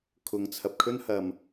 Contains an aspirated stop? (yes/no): yes